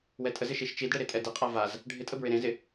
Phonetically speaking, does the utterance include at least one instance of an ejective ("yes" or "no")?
yes